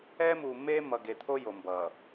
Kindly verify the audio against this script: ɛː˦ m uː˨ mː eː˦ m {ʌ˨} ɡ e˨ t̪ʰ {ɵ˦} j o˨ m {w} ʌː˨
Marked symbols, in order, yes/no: yes, no, no

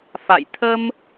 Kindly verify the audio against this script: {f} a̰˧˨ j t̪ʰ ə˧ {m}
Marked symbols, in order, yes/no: yes, yes

